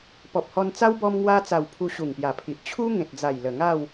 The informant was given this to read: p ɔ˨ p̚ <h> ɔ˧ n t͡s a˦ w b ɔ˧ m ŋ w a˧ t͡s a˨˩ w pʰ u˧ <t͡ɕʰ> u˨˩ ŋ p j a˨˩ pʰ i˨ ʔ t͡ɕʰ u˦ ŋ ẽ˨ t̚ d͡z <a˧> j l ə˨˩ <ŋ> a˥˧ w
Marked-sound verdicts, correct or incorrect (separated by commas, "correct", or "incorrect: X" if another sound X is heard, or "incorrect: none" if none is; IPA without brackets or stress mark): correct, incorrect: ɕ, incorrect: a˨˩, correct